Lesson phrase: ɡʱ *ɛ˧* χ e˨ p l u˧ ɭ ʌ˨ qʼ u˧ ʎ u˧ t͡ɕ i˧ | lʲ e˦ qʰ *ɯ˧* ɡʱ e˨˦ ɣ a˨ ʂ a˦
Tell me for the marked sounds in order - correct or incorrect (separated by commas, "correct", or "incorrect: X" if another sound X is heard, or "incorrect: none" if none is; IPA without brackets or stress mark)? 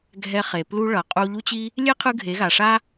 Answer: correct, correct